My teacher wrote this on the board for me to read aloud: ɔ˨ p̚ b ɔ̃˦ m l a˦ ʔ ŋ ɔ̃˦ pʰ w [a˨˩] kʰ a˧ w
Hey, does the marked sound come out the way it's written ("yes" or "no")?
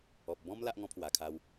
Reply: yes